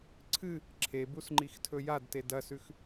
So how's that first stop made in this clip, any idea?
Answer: click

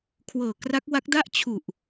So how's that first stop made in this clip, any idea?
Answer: aspirated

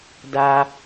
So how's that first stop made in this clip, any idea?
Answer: plain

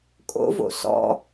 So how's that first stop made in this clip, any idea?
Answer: ejective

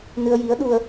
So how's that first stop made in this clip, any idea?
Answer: implosive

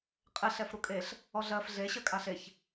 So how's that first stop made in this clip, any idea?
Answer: ejective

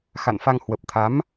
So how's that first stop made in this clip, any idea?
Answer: plain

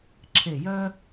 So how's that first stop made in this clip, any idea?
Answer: click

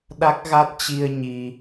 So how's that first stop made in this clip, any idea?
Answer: implosive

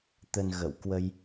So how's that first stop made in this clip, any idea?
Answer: plain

